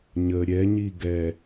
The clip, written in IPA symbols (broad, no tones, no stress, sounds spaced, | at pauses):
ɲ ə ɾʲ ɛ ɲ i ɡ ɛ